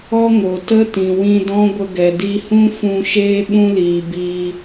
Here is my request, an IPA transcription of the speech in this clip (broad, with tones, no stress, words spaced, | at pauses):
ɔ˦ŋo˨tə˦ tĩ˨wĩ˧dɔ̃˦ ɡʷə˧ɡɛ˨ di˧hũ˦fũ˧ ʃeː˦ɓũ˦liː˨ biː˧